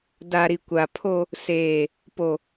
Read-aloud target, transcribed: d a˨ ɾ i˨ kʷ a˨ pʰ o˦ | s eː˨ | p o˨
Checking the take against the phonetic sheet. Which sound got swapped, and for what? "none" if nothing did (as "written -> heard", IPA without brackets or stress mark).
none